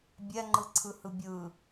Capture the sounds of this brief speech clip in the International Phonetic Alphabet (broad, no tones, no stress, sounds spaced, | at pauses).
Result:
bʲ ɛ ŋ͡ǃ ɯ ǀʰ ɯ h ɯ bʲ ɯ